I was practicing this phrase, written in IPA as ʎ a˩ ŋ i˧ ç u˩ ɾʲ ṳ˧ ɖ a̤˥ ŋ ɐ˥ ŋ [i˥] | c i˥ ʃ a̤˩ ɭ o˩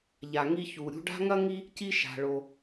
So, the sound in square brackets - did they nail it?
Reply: yes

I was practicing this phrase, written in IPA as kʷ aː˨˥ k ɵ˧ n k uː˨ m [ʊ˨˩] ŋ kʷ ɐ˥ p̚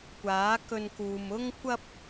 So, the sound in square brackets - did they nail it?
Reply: no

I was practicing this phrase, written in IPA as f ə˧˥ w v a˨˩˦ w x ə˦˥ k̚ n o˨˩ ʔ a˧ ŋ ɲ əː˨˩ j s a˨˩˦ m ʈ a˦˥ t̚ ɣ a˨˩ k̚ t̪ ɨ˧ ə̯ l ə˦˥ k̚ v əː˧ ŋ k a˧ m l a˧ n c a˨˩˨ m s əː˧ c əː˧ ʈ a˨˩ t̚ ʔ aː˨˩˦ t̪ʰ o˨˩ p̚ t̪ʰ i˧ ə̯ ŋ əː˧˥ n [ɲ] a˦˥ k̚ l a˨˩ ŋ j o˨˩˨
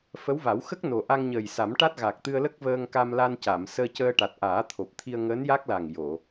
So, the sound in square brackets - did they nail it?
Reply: no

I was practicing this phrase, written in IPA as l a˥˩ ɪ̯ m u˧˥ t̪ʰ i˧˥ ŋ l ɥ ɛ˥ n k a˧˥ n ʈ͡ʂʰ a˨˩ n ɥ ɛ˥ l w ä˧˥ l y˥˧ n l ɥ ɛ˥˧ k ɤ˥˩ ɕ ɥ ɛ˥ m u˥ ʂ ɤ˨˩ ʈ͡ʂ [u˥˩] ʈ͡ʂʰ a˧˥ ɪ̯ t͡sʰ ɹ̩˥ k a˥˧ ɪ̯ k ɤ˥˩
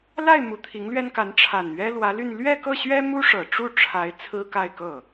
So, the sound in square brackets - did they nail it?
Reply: yes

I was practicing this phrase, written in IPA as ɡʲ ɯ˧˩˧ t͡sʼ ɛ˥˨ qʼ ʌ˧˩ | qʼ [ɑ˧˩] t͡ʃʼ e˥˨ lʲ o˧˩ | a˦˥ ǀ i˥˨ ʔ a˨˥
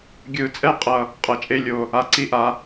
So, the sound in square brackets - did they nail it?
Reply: no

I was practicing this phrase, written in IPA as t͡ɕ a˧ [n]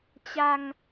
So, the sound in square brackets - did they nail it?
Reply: no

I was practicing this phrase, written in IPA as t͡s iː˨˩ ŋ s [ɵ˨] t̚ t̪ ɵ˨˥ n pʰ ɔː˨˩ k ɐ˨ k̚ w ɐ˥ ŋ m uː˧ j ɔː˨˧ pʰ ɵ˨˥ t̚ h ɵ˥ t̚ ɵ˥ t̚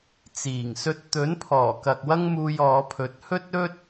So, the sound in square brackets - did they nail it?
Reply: no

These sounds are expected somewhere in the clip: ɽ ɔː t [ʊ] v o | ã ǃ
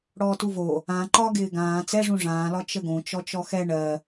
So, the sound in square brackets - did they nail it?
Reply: no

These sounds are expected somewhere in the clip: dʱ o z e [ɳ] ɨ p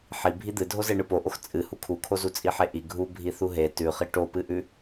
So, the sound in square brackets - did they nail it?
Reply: yes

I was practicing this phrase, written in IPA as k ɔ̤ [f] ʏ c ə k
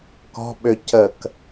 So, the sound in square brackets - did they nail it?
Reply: no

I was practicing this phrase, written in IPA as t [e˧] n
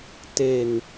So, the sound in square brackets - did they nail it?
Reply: yes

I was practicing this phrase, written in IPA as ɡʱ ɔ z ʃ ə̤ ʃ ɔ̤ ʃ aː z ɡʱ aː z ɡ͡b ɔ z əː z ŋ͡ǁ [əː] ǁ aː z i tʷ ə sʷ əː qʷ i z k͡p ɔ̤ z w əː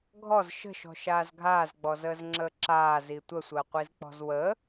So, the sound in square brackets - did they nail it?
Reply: yes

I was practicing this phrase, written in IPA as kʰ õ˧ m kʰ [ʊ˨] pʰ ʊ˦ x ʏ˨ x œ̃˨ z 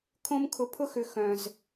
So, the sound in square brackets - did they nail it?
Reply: yes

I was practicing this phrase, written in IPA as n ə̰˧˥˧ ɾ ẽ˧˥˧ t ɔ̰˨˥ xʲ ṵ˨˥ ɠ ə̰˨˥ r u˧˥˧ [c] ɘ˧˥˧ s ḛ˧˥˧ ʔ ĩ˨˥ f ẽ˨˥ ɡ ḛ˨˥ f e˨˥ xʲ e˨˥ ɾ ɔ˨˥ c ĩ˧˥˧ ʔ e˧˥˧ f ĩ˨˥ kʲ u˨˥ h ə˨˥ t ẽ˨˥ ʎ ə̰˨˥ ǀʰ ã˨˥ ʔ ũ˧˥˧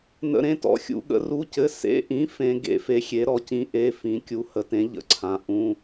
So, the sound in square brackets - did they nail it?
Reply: yes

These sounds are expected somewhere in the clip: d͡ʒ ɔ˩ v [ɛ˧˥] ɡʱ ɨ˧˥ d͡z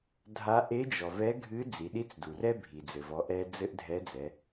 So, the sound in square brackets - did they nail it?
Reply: yes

